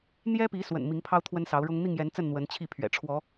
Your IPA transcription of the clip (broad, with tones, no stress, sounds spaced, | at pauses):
n̪ j ɛ˦ p i˨˦ s w ə̰˨˩ n m i˨˦ ŋ pʰ ɑ˦ ʊ̯ t̪ʰ w ə˦ n s ɑ˨˦ ʊ̯ ɻ ʊ˦ ŋ n̪ i˥˨ ŋ j ɛ˨˦ n t͡s ə˥˨ n n̪ w ə˨˦ n t͡ɕʰ i˥˨ pʰ ɥ ɛ̰˨˩ ʈ͡ʂʰ w ɔ˨˦